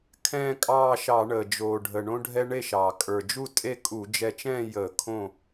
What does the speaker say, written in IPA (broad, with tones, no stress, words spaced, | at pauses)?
kʰɛ̃ː˥˧kʼɑː˥˧ʃɑ˧˩˧ɳəː˩ d͡ʒoː˩ɖʱə˩ɳõ˧ɖʱɛ˧ ɳe˥˩ʃɑː˩ kʼə˞˩d͡ʒu˥˩ tʼe˥˧kʼu˧˩˧d͡ʒɛ˧t͡ʃɛ̃ː˥˧ jəː˧˩˧kʰõ˥˩